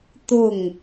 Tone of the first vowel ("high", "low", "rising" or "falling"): falling